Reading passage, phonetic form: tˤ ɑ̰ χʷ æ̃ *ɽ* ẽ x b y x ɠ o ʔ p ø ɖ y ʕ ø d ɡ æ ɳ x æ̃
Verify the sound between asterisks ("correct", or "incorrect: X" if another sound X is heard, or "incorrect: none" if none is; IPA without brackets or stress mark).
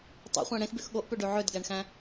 correct